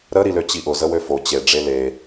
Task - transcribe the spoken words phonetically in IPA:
ɾ ə ɾ i l ø t͡ɕ i ʔ ʊ z ə w ø f o t͡ɕ e ɖ͡ʐ e l e

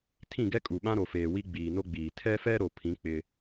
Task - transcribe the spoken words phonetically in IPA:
tʰ ĩ˦˨ ɡ ɛ˦ kʼ u˨ ɓ ã˦ ɾ o˨ f eː˨ w i˦ ɡ͡b iː˨ n o˦ ɡ͡b iː˨ tʰ ɛ˦ f ɛ˦ ɾ o˨ pʰ ĩ˨˦ k͡p ɪ˦

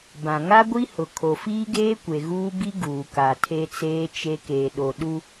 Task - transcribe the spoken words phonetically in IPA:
b ã˨ ŋ a˦ ɡʷ i˦ h ʊ˨ kʰ o˨ f iː˦ ɡ eː˦ kʷ e˨ ɣ uː˦ b i˦ ɡ uː˨ k a˨ tʰ e˦ t͡s eː˦ t͡ʃ e˦ k eː˨ ɗ o˨ ɗ u˦

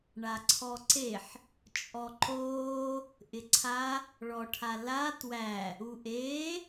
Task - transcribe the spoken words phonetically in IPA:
ɳ a ǀʰ ɔ ǀ e ħ | t͡ʃʼ ɔ ǃ oː | ʔ ɪ ǀʰ a | ɭ ɔ ʈʰ a l a t w æ | u ʔ eː

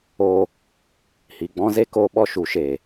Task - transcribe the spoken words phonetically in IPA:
oː˧ | h i˨ ɡ͡b ɔ̃˦ z e˦ k oː˦ ɓ ɔ˦ ʃ u˨˦ ʃ eː˨

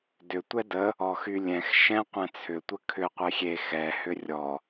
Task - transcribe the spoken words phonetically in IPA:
d ʏ tʷ ɛ d ə | ɔ x y lʲ ɛ̃ x ʃ ɛ̃ qʷ ɛ̃ t͡sʰ ʏ tʷ ə kʰ ʏ qʷ e xʲ e x ɛ h ʏ rʲ ɔ

